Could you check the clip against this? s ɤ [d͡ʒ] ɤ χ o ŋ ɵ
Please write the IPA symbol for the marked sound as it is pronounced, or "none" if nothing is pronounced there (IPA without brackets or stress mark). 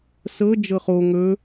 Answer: d͡ʒ